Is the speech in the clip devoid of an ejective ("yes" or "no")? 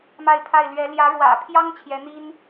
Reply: yes